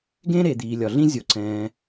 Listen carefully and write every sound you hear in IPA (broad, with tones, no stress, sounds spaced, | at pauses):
ɡ ẽ˥ ɾ e˩ d̪ iː˩ lʲ ɒ˩ ɮ ĩ˥ zʲ o˩ ǀ ɛ̃ː˩